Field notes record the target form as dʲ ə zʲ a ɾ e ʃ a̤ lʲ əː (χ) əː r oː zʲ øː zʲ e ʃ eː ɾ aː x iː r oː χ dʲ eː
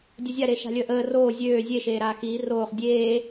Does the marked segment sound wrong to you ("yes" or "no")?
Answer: yes